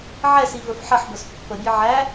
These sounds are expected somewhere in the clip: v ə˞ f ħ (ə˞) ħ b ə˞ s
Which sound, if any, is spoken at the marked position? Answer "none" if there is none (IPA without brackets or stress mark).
ʌ